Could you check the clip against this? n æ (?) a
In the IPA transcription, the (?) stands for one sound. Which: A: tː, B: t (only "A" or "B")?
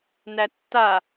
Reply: A